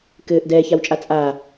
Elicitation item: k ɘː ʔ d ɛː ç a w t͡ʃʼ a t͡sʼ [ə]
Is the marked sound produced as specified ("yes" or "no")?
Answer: no